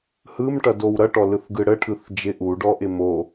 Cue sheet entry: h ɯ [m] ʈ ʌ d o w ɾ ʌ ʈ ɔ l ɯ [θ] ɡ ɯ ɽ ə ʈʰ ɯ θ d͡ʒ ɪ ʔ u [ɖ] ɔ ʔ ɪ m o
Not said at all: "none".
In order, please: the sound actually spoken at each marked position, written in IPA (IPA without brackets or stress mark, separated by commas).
m, θ, ɖ